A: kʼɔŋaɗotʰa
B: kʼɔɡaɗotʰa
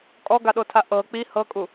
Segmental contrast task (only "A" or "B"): B